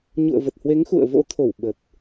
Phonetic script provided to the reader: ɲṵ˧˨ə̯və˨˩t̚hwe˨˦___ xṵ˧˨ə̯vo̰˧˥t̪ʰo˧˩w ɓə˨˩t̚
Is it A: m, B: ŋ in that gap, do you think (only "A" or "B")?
B